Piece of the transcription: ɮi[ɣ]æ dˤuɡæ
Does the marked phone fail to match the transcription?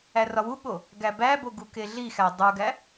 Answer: yes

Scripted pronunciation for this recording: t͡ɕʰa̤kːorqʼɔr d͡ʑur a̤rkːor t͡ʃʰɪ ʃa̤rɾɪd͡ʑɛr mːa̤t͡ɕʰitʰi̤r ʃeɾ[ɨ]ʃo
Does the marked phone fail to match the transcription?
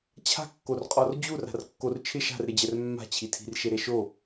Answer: yes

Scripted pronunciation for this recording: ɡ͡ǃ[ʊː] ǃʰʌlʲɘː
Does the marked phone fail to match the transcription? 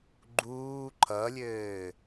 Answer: yes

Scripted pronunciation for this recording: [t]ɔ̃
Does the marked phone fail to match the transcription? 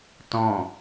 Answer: no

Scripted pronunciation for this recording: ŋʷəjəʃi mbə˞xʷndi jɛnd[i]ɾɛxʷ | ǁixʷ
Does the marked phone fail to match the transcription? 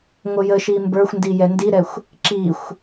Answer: no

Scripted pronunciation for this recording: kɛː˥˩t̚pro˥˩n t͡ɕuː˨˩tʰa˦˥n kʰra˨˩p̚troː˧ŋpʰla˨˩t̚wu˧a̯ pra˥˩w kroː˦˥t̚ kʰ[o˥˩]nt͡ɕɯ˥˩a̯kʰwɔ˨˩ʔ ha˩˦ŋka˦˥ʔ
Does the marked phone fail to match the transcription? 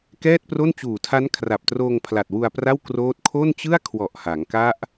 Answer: no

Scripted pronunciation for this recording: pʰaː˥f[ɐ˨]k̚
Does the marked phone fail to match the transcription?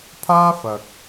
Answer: no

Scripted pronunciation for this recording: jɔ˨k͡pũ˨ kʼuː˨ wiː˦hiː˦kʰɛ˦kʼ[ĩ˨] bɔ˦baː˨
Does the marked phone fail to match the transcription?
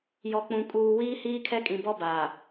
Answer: no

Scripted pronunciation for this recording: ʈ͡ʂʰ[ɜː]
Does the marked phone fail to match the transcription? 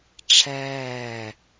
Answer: yes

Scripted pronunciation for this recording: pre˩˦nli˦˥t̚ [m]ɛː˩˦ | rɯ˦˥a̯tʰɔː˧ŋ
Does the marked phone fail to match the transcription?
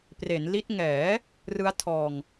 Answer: yes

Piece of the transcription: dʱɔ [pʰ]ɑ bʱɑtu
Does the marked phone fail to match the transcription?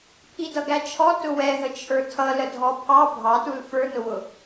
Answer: no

